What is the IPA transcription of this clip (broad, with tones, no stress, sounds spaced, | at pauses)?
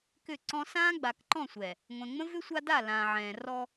k ʏ˦˨ ǀ ɔ̃˦ s ãː˦ ɡ͡b a˨ k ǃ ɔ̃˦˨ sʷ ɛ˨ | ŋʷ ɛ̃˨ ŋ͡m ə̃˦ v ʏ˦ sʷ a˦ d a˦˨ l ãː˨ ʕ ɛ̃ː˨ r ɔ˦